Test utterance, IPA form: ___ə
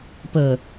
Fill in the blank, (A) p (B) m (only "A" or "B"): A